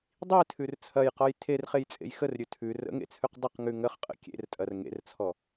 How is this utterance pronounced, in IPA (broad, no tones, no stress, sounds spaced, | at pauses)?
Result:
dˤ i tʰ ʉ r t͡sʰ ɐ j q ɔ j tʰ e r χ e j t͡sʼ ḛ j x ə r ɾʲ ʉ tʰ ʉ r ə̰ ŋ ḛ t͡sʰ ʉ q dˤ ə q ŋ ʉ ŋ ə χ qʼ ə̰ kʲ ḛ r tʼ ɐ r ŋ ḛ r t͡sʰ ɔ